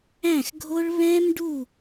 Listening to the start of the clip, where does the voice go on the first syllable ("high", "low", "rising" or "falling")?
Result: falling